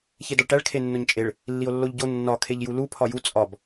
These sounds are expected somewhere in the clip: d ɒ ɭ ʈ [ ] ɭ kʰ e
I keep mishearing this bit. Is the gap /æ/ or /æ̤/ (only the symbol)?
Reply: æ